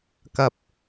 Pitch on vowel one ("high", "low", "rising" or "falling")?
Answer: low